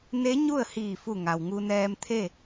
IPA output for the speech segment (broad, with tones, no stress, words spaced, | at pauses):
ne˧˥ ɲu˥˨ə̯hiː˧˩fu˧˩ ŋa˩wŋu˧nɛː˧m t̪ʰe˥˨